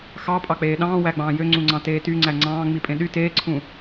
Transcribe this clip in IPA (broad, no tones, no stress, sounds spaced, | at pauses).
x ɑ pʼ ɑ k͡p eː ɗ ɑ̃ː w æ ɡ͡b ɑ̃ː j ø ŋ͡ǀ ũ ŋ͡ǀ ɑ̃ t eː t y ŋ͡ǀ æ ŋ͡ǀ ɑ̃ː ŋ͡m i pʼ ẽ ɗ y t eː ǀʰ ũ